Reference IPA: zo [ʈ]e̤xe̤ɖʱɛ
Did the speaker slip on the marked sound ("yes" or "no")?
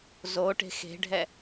no